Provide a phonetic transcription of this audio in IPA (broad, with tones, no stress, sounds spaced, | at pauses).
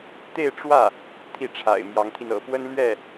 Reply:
t̪ e˥˧ ɪ̯ ʈ͡ʂ w ä˥˩ | t̪ʰ i˥˩ ʈ͡ʂʰ a̰˨˩ ɪ̯ m j ɑ˧˥ ŋ t̪ʰ i˧ n ɤ̰˨˩ p w ə˥ n l ɥ ɛ˥˩